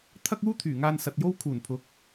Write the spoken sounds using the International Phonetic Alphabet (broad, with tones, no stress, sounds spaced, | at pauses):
t̪ʰ ɐ˥ k̚ uː˥ t̪ʰ yː˨˩ ŋ aː˧ n s ɐ˨ t̚ j o˥ w kʰ uː˨˩ n pʰ ʊ˨˥ k̚